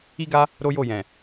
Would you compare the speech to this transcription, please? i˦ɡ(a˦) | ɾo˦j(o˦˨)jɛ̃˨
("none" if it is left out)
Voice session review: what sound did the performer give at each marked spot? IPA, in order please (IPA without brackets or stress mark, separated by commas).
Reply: a˦, o˦˨